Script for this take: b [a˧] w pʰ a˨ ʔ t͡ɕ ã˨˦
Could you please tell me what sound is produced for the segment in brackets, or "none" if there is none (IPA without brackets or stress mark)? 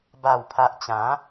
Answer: a˨˩